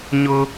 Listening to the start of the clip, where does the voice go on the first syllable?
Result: high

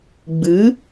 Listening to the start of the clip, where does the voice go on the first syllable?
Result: rising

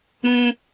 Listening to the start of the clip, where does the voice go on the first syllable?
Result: high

